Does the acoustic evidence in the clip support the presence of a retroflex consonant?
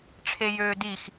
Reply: yes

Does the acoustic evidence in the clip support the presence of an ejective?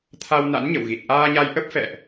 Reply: no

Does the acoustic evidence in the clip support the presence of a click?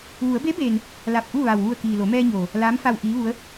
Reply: no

